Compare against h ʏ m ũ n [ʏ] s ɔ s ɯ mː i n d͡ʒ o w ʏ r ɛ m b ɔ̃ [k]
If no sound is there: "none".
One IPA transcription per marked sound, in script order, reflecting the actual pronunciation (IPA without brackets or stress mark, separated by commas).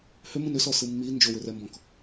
ʏ, k